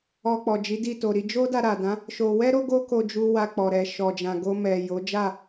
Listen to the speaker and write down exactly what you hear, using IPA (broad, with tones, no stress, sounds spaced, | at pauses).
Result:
ɔ˧ k͡p ɔ˨ d͡ʒ i˨˦ d i˦˨ t o˨ ɾ i˨˦ d͡ʒ o˦ d a˧ ɾ a˨ d ã˨˦ | ʃ o˧ w ɛ˦ ɾ o˦ ɡ o˦ k o˧ d͡ʒ u˧ w a˧ k͡p ɔ˨ ɾ ɛ˨ ʃ ɔ˨ d͡ʒ ã˨ ɡ o˧ m ɛ˨ j o˨˦ d͡ʒ a˦˨